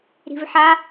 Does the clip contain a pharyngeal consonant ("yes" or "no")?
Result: yes